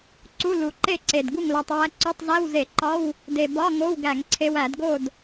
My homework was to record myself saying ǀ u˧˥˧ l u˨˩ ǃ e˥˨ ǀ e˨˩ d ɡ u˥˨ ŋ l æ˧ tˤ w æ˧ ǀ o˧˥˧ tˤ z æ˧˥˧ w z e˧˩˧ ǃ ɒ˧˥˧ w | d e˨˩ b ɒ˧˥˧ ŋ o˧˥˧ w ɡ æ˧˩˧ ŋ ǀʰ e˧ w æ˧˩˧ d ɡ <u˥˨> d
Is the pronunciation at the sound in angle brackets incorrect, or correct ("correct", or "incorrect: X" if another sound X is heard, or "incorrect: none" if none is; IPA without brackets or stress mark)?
incorrect: o˥˨